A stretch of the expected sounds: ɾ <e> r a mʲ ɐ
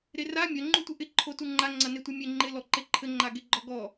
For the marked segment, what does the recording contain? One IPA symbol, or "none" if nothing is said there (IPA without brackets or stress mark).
e